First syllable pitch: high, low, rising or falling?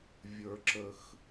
low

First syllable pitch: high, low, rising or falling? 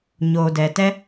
low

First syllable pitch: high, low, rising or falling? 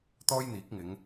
high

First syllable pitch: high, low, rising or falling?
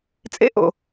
high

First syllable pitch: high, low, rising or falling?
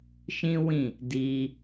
high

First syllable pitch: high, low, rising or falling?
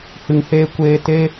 low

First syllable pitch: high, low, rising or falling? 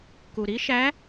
low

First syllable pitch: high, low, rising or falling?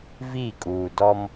falling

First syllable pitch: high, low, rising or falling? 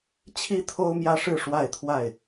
high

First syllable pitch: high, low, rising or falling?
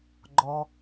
low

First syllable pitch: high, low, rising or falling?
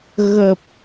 low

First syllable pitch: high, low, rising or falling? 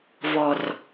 low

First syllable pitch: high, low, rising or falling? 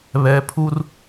rising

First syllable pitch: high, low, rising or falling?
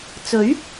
rising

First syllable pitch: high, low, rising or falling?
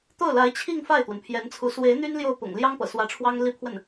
falling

